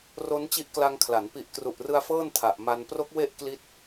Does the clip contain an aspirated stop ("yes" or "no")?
yes